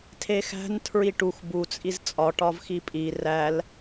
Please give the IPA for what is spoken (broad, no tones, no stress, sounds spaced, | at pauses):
tʰ e x æ̤ n tʰ ɹ i ʈ u x b u t͡sʼ i z t͡sʼ ɒ ʈ ɒ v x i pʼ i r æ l